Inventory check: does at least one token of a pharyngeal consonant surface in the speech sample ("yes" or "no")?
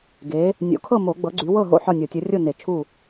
yes